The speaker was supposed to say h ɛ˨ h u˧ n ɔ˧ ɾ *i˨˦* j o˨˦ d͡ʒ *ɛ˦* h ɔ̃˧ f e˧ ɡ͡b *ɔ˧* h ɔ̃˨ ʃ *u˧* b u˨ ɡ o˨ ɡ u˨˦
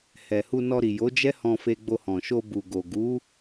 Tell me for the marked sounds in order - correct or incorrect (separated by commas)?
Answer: incorrect, correct, incorrect, incorrect